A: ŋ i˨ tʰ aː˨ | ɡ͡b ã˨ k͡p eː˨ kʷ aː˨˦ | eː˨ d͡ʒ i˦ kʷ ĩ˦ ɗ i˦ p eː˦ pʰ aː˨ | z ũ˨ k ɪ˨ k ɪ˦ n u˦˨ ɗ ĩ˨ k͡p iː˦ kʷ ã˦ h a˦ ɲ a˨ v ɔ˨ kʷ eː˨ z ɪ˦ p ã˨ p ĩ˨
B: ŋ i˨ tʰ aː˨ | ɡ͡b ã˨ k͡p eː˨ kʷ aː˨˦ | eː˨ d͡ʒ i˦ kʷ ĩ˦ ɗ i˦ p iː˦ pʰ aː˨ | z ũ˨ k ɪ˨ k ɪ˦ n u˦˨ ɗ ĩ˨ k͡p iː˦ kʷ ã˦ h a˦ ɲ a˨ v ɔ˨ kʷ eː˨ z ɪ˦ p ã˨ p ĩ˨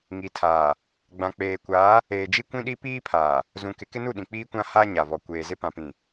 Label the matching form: B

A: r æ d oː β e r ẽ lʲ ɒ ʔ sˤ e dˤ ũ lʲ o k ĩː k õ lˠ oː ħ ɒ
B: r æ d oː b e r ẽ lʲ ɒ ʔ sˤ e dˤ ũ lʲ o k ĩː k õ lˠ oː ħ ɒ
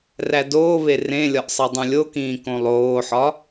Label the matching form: A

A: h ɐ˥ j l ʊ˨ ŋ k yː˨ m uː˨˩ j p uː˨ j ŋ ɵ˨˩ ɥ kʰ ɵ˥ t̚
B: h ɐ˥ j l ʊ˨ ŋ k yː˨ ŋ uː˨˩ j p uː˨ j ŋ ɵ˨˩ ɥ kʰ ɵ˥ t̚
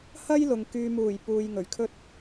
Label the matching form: A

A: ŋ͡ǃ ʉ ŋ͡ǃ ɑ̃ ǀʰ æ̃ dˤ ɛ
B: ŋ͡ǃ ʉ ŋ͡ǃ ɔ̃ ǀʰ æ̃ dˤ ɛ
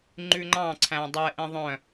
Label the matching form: A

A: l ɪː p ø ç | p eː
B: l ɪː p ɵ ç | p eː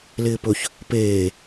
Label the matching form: B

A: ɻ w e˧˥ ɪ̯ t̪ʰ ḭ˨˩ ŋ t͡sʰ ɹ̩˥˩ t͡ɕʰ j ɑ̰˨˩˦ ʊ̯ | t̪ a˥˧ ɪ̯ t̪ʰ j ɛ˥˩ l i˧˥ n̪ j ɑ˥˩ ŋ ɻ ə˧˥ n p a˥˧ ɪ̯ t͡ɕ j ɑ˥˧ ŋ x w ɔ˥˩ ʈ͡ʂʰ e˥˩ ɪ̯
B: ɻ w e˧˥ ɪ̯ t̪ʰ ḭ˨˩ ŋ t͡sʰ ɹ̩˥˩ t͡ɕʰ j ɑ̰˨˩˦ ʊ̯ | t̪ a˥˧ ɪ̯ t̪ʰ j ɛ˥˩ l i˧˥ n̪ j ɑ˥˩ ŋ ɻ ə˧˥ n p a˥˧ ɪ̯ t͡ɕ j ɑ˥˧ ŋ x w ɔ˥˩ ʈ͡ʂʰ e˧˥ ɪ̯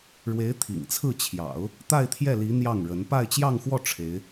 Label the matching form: B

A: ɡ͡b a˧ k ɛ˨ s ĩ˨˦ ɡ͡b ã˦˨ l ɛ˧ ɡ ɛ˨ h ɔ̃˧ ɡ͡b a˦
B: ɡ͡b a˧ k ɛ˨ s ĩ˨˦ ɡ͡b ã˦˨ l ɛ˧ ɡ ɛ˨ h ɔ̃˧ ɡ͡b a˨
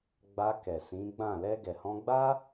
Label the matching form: A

